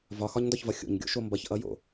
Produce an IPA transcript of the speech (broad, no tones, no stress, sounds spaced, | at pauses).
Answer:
v ɒ x ɒ ɲ n d ɒ ç v ʌ xʲ o̰ ɲ ɡʲ o̰ ʃ o m b ʌ ç ʔ ʌ j o̰